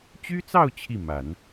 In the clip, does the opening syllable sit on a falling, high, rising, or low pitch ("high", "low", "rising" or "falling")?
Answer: high